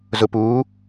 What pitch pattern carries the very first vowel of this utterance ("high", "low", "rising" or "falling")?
low